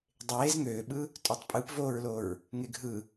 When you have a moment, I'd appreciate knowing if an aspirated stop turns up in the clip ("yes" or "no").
no